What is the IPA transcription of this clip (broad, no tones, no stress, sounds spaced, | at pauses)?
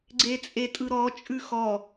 ɡ͡ǀ e t͡sʼ e tʼ ɯ ɾ ɔ t͡ʃʼ ʉ x ɔ